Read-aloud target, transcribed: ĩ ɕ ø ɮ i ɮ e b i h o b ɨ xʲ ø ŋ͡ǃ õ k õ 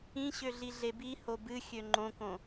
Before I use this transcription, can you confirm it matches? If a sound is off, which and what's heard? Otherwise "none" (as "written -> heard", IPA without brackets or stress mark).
none